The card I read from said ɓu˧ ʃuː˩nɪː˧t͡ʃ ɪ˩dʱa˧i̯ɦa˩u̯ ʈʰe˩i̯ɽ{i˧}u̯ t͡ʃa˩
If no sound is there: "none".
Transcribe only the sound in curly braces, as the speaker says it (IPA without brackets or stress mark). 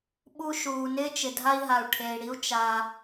i˧